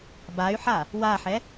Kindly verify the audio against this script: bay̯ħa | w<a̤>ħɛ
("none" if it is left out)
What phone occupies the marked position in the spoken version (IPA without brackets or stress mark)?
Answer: a